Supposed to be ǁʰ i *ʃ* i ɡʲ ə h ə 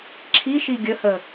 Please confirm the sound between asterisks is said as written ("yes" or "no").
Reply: yes